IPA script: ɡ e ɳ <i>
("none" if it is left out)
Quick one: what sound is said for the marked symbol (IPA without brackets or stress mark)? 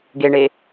e